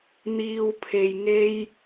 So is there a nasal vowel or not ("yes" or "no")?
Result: no